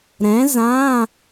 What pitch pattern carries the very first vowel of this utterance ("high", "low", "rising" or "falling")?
rising